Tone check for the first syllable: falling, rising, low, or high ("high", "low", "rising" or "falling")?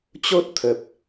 high